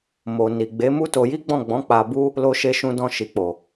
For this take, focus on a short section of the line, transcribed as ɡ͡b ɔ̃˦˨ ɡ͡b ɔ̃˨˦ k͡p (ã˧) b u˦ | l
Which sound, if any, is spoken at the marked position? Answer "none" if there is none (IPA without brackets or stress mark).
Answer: a˧